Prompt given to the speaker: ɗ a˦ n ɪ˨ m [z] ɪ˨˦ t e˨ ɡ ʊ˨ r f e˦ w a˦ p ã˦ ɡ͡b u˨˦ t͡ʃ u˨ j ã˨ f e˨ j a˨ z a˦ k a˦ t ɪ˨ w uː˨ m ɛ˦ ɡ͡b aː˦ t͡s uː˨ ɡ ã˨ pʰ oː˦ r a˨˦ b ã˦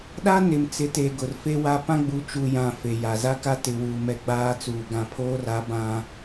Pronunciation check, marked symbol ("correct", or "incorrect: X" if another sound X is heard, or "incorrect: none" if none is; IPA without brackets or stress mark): incorrect: t͡s